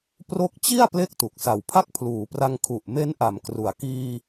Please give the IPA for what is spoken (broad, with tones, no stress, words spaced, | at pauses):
pro˦˥k̚t͡ɕi˥˩a̯ ple˥˩k̚tu˨˩k̚ sa˨˩wpʰa˥˩k̚pʰluː˩˦pra˧ŋ kʰu˨˩ʔme˦˥nʔa˩˦m kru˩˦a̯ kiː˧